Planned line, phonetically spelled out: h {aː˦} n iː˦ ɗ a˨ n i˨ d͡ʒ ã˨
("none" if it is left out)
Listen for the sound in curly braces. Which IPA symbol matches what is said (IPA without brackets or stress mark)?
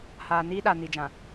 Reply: aː˨